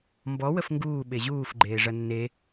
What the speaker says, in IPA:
mbɔ wəfŋɡuː ɓeʑuːf ɡ͡ǃeːʐɐnːe

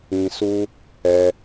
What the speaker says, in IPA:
ĩ˧ su˦ | ɛ˧

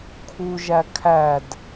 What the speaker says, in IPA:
kʰuʒæ kʰæd

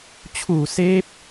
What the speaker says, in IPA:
t͡ɕʰuː˨˩ seː˦˥p̚

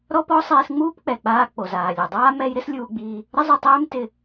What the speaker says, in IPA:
ɾɔ˥pɔ˥ sˤiː˧sŋ͡muː˥pk͡pɛ˩k͡paː˧ k͡po˩zaː˩lʲu˩dˤaː˥ mɛ˥j ɾɪ˥slʲuː˧ɡ͡biː˧ | ɾɪ˥zˤʊ˧tˤeː˥m tɪ˧

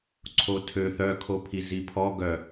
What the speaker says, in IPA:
ǀʰotʰø θœkʰopʰi zipʰɔ ɡœ

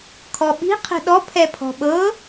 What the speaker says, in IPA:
kʰɔɓi̤ qʰɛ̤ɗɔ pʰɛpʰɔ̤ɓɤ

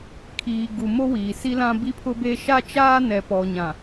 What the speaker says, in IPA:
kʰiː˨ɡu˨ mo˦wiː˨ si˦lã˦ bi˦pʰʊ˦be˦ ʃa˦t͡ʃaː˦nɛ˨ pɔ˨ ɲã˨

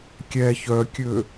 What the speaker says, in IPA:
kʲɛ çœkʲø

